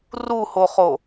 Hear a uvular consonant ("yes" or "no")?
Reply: yes